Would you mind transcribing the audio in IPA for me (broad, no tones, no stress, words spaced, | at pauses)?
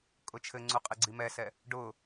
kʼʊt͡ʃʰɘŋ͡ǀu qʼeɡ͡ǀimɛsɛ | ɖʊ